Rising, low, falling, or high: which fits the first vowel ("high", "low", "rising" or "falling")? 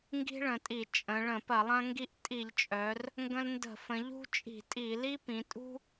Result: high